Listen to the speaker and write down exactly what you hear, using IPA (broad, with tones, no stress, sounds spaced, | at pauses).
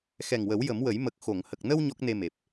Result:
x ɛ˨˩ ŋ w ə˨˩˦ w j ə˨˩˦ m w ə˨˩˦ j m ə˨˩ k̚ x o˨˩˨ ŋ h ə˨˩ k̚ n ə˧ w ɲ ɔ˦˥ k̚ n e˧ m e˨˩ p̚